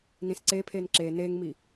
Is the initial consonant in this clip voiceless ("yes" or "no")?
no